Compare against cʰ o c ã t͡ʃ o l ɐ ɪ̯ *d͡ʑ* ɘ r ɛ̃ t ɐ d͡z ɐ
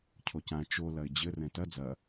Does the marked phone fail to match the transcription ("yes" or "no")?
no